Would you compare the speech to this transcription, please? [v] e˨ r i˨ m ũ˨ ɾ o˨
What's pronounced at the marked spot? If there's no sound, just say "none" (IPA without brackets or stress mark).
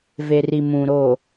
v